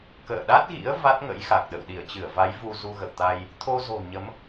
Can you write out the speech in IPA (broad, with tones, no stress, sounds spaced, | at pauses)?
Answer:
k ə̰ː˧˨ ɗ a˦˥ t̚ ɣ ḭ˧˥ ə̯ v a˦˥ t̚ ŋ ə̰˧˥ j x a˨˩ k̚ ɗ ə̰˧˨ w ɗ i˧˩ ə̯ t͡ɕ ɨ˧˩ ə̯ v a˨˦ j v u˧ z u˧ ɣ ə̰˧˨ w t̪ a˧ j | t̪ʰ o˧ z o̤˨˩ ɲ ə˨˦ m